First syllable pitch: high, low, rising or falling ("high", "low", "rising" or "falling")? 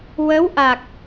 rising